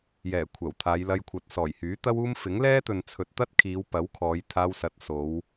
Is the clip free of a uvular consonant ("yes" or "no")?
yes